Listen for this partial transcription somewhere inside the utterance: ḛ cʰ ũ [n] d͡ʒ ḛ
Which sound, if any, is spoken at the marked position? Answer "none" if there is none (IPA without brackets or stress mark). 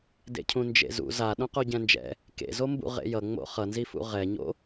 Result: n